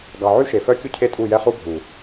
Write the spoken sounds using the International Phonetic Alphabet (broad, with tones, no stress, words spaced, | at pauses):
ɡɑ˨ ʕy˦ʃe˨fœ˦ kʲu˦cʰe˦tʼu˦˨jɛ˦ χu˦bʱu˨